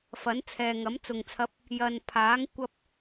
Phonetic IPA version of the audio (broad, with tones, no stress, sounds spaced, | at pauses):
f ɐ˨˥ n t͡sʰ ɛː˨ ŋ ɐ˨˥ m t͡s ʊ˨˩ ŋ t͡sʰ ɐ˨˥ p̚ | j ɐ˨ n pʰ aː˨˥ ŋ kʷ ɐ˧ p̚